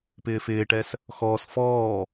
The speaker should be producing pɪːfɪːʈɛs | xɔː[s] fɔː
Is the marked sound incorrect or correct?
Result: correct